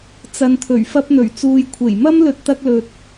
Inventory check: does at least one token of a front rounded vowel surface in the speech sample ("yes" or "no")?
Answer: no